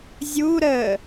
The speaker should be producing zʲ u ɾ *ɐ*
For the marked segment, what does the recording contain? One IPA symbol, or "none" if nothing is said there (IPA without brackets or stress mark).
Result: ə